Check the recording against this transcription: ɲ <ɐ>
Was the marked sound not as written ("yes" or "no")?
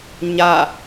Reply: yes